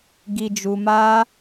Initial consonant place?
velar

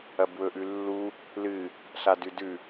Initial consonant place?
labial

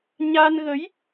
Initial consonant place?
palatal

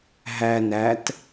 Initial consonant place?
glottal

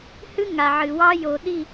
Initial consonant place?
glottal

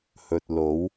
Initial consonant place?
glottal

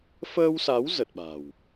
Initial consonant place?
labial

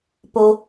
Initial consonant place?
labial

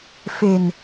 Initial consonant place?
labial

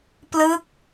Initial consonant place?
labial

